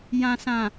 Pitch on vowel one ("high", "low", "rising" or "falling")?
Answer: low